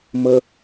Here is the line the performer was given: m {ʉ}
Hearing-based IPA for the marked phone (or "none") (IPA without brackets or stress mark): ə